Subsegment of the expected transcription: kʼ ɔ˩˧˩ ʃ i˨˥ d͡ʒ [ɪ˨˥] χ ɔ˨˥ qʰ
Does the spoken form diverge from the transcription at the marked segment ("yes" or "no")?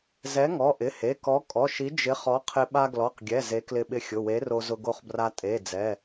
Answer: no